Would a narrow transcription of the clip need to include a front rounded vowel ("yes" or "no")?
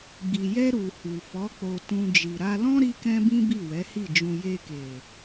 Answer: no